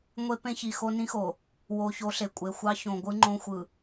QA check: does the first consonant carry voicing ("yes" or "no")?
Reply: yes